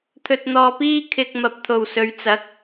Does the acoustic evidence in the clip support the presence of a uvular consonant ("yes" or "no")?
no